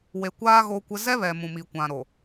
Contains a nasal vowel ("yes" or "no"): yes